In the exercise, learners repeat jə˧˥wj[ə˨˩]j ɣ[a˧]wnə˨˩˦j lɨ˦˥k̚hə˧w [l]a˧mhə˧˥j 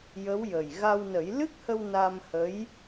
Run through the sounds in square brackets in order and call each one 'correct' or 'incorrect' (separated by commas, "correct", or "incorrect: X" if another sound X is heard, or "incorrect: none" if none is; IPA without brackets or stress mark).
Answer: correct, correct, incorrect: n